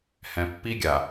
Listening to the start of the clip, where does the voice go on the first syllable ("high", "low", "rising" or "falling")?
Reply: low